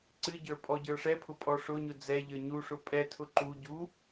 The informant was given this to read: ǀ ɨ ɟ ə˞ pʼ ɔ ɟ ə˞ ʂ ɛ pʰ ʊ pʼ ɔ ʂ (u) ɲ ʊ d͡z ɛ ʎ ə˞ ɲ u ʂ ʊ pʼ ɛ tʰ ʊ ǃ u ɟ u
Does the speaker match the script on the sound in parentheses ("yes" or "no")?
no